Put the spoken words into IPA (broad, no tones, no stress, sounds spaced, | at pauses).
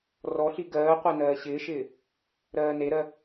r ɔ ɬ i ɡ ɜː qʷ ɜ n ɜː ɕ ɪː ʃ ɪː | ɾ ɜː n e ɾ ɜ